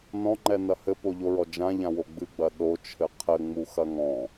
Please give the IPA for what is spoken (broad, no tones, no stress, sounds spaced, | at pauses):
n ɔ̃ ŋ͡ǃ ɛ n ɐ h ɘ p o ʎ o ɹ ɔ d͡ʒ ã ʎ ã w o ɡ͡b ɨ ɡ͡b ɐ ɗ o t͡ʃʰ ɘ qʰ ɘ ŋ͡m u x ɐ ŋ ɔ̃